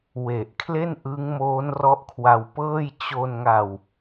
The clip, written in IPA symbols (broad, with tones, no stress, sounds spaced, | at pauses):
w e˨˩ ʔ kʰ l e˥˩ n ʔ ɯ˦˥ ŋ m oː˦˥ n r ɔ˦˥ ʔ kʰ w a˧ w p ɤː˥˩ j t͡ɕ o˧ n ŋ a˧ w